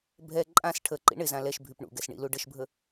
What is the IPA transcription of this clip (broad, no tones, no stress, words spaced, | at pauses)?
bʱɛ ǃʼãs ʈʰəǃḭ ɳɪzã lɛʃbʱyp ɳṵɡɛs ɳḭlu ɖəʃbʱə